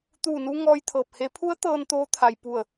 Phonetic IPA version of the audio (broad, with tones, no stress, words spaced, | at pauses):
t̪uː˧˩nu˧ ŋɔː˧j t̪ʰɤː˧˩p̚he˧˥ pʰu˧˥ə̯ t̪ɤː˧n t̪oː˧˥ t̪ʰa˩j pu˧˩ə̯